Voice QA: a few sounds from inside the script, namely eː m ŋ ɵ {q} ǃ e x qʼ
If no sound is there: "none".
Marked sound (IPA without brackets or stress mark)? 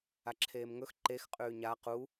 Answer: x